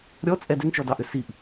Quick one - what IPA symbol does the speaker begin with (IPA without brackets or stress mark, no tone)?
ɾʲ